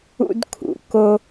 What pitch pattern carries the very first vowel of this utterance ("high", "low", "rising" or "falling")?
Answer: high